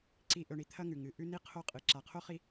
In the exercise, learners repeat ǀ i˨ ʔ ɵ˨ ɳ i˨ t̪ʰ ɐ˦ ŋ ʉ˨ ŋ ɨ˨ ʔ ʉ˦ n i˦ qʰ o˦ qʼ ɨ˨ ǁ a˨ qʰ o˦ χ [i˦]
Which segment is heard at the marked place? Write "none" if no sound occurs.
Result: i˦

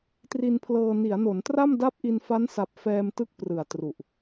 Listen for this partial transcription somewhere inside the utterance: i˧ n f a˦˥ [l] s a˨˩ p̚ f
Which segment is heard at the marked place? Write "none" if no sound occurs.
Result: n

